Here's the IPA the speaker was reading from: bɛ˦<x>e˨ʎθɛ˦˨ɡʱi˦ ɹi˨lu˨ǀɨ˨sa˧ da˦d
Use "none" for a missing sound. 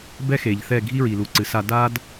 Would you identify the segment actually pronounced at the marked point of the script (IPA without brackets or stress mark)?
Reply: x